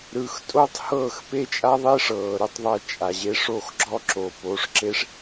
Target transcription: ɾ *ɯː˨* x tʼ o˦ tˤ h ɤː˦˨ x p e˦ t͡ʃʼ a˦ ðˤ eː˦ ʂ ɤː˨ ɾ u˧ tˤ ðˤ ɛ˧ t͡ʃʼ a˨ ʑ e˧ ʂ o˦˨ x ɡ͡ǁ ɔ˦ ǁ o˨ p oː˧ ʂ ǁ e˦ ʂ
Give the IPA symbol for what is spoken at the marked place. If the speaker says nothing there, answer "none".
ɯː˨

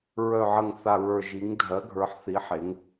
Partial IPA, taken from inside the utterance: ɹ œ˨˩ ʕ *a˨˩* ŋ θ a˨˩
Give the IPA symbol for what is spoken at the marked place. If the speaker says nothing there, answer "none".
ə˨˩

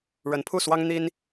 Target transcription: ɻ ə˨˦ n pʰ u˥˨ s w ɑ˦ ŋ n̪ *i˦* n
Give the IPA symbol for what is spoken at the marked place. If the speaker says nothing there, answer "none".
i˦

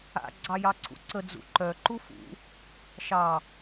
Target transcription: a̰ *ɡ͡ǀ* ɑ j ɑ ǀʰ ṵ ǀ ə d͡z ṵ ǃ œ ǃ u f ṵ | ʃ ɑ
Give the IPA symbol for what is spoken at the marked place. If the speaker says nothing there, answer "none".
ɡ͡ǀ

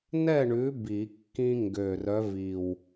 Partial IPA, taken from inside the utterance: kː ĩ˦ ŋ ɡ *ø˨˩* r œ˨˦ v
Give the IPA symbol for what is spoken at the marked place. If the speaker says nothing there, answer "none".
ø˨˩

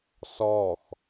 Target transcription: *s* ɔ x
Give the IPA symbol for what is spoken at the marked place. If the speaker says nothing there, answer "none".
s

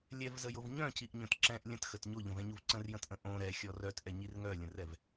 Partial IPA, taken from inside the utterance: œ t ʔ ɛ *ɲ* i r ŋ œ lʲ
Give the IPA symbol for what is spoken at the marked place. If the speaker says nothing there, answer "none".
ɲ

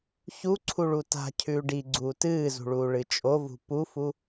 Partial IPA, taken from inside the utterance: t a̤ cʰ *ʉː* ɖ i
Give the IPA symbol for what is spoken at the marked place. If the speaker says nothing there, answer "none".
ʉː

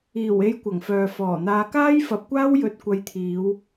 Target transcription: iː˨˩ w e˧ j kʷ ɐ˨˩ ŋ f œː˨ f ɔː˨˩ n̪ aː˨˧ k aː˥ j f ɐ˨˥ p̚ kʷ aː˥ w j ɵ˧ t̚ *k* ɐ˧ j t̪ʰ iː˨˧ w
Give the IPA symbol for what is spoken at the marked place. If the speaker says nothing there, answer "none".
kʷ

